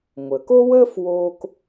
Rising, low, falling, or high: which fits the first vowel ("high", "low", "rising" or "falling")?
low